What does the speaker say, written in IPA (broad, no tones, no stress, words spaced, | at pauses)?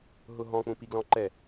ɦʊɦɔ̃ k͡pũpiɡlɔ̃ǃɛ